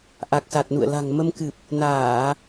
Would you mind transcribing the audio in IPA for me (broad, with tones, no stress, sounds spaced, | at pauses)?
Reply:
ʔ a˨˩ k̚ s a˨˩ t̚ n ṵ˧˨ ə̯ l a̤˨˩ ŋ m ə˧ m k ɨ˨˩ p̚ | n aː˧˩˨